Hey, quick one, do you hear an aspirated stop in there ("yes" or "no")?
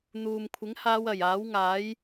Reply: yes